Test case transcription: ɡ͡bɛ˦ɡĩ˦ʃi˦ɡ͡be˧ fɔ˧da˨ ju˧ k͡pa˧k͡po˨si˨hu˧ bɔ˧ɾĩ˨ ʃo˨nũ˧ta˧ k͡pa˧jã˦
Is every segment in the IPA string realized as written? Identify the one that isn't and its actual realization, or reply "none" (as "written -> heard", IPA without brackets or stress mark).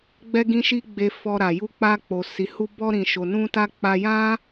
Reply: d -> ɾ